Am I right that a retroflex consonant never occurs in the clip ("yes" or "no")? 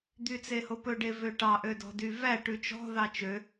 no